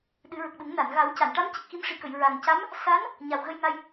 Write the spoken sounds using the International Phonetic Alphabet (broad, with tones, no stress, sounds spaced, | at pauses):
ɗ ɨ˨˩˦ ɹ ə˨˩ k̚ ɗ u˨˩˦ ŋ n a˨˩˨ n ɣ a˨˩˦ w c a˨˩˨ n ʈ a˧˥ m c ə˨˩ k̚ x i˧ m ʂ i˨˩ k ə˨˩˨ j ɹ a˨˩ ŋ c a˧˥ m | s a˧˥ n | ɲ a˨˩ w ɣ ə˧ j ŋ a˧ j